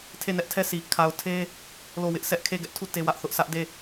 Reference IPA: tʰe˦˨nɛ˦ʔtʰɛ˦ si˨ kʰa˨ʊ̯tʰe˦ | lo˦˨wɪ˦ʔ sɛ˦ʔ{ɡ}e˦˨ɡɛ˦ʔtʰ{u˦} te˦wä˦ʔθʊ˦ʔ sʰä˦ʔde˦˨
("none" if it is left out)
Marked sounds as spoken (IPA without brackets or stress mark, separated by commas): kʰ, u˦˨